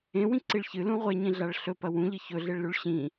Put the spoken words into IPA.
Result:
ẽwĩǀiɭ çɨlũ ʁʷeɲĩɮaɭ ɬɵpɐ wũʎɨ çɵɮeɭlʉɭ ɕĩ

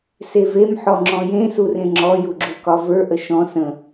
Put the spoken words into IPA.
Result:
sevem ħɔŋ͡ǁɔ̃jẽ surẽŋ͡ǁɔ juɡ͡ǁukɒvə˞ ʔəʃɔ̃ sə̃

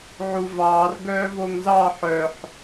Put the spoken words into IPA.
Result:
ʕuvɑːr ɡœːvoŋzɑ ħœħ

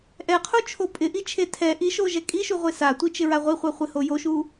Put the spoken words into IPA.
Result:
ʔɛqʰut͡ʃʰo pʼɪʔit͡ʃʰe tʰɛ ʔiʃoʒɛ kʼiʃuʁʷe satʷit͡ʃɪɹa ʁʷiχʷaχʷɪho joʃu

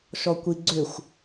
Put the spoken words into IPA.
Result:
ʃɔkʷiɡ͡ǀʏxʷ

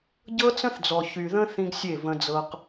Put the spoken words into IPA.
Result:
ɟɤ˦t͡sə̃˦θd͡zɔ˨ çy˨ðə̃˦ θĩ˦ɡsʲe˦˨və̃˦d͡zɤ˦q

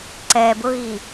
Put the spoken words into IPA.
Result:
ǀɛ bʊɣi

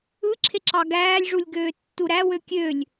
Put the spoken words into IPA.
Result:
ɯǁʰeǁɑ ɡæːlʲʐulʲɡøːtːu ɾæwø kʲølʲ

